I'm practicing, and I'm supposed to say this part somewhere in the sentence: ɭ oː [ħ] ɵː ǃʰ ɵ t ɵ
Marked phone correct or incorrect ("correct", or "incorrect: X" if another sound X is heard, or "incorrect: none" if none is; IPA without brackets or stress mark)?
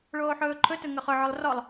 correct